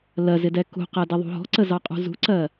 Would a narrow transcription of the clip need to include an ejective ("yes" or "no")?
yes